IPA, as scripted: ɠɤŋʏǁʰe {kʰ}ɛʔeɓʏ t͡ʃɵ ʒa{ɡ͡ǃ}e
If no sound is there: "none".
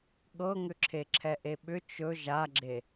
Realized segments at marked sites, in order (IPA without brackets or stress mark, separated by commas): ǁʰ, ɡ͡ǁ